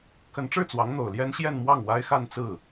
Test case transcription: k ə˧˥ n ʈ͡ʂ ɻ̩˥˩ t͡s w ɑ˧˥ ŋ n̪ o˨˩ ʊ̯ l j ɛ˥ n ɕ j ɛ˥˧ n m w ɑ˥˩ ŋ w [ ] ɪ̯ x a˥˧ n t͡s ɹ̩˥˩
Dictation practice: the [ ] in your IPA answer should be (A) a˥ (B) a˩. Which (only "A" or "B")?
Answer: A